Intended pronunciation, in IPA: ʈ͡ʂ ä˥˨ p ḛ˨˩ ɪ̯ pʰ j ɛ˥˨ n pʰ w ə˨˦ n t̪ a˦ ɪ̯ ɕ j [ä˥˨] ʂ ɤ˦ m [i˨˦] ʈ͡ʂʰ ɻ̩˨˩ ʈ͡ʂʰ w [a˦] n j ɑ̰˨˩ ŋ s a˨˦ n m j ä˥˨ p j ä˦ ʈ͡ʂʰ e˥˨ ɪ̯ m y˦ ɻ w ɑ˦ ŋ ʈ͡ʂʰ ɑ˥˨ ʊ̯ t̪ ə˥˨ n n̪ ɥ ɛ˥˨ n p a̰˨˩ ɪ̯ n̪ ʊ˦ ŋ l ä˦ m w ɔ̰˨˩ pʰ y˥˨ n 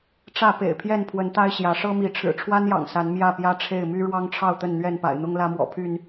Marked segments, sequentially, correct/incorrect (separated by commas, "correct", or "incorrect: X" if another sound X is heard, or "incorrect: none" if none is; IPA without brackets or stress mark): incorrect: ä˨˦, correct, correct